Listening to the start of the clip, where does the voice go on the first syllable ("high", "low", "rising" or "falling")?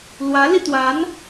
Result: rising